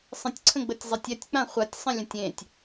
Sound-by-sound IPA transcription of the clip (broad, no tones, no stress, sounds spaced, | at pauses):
sˤ ə̃ tʲ ǀʰ ə̃ ɡ͡b ə tʲ zˤ ɜ tʲ ɛ tʲ k͡p ã χʷ a tʲ sˤ ə̃ lʲ ə̃ tʲ ẽ tʲ